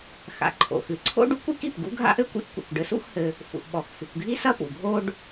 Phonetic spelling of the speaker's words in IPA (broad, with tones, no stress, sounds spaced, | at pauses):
x a̰˩ ǃʰ o̰˩ x ɨ˩ ǀʰ o̰˥ ɖ u˥ kʷ i˥ k i˩ p ɡ ṵ˥ ɡʱ a̰˥ ʔ ɘ˥ kʷ ḭ˥ ʔ kʷ ḭ˩ kʷ ɖ ɘ˧ s ṵ˥ x h ɘ˧ | f ṵ˩ ʔ ɓ ɔ˩ x f ɨ˩ kʷ ɡʱ i˥ s ɐ˥ p ṵ˩ ɡʱ o˥ ɖ